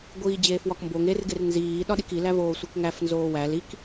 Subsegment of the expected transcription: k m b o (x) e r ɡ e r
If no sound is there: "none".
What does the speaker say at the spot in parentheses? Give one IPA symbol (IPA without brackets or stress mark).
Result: ŋ